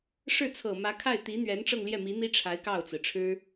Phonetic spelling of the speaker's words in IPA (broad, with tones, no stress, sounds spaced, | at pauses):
ʂ ɻ̩˥˩ t͡sʰ ɤ˨˩ m ä˧˥ kʰ a˥˩ ɪ̯ t̪ i˧˥ n̪ ɥ ɛ˧˥ n ʈ͡ʂ ɤ˥˧ ŋ l j ɛ˥˩ m i˧˥ n̪ i˥ ʈ͡ʂʰ a˧˥ ɪ̯ k ɑ˥˩ ʊ̯ t͡s ɹ̩˩ ʈ͡ʂʰ ɻ̩˥